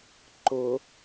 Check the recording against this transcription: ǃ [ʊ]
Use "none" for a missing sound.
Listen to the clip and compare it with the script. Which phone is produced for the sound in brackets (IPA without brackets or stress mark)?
ʊ